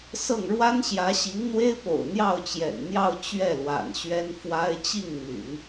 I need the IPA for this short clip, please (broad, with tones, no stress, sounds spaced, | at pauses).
s ɤ˥˩ ŋ ɻ w a˥ n ɕ j ä˧˥ ɕ i˧˥ ŋ n̪ w e˥ ɪ̯ p o̰˨˩ ʊ̯ n̪ j ɑ˥˩ ʊ̯ t͡ɕ j ɛ̰˨˩ n n̪ j ɑ˥˧ ʊ̯ t͡ɕ ɥ ɛ˥˩ l w a̰˨˩ n ɕ ɥ ɛ˥ n f w a˥ ɪ̯ t͡ɕ i˥˩ ŋ n̪ y̰˨˩˦ n